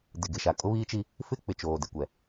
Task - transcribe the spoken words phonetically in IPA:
dɪ˨ɡɪ˨ʃa˨ kʼʊ˦βiː˦ t͡ʃi˦ | fɪ˦k͡pɪ˨ t͡ʃoː˨dɪ˨kʷɛ˨

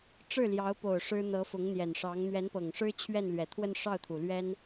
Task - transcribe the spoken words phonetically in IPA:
ʈ͡ʂɻ̩˥˩ljɑ˧˥ʊ̯po˨˩ʊ̯ ʂɻ̩˥ n̪ɤ˧˥ fʊ˧˥ŋn̪jɛ˨˩nʂɑ˧˥ŋ n̪ɥɛ˧˥npɤ˨˩ŋʂɻ̩˥ t͡ɕʰɥɛ˥˩nlɥɛ˨˩t̪ʰwə˥˧n ʂɑ˥˩ʊ̯t̪ʰu˩lɥɛ˥n

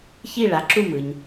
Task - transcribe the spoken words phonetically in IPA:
çi˦˨ɭa˩˥ǁu˦˨ mɯ˩ɲ

